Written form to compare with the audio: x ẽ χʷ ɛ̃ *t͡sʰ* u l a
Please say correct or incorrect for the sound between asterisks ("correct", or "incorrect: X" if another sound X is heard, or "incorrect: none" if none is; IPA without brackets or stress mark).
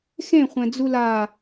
incorrect: d͡z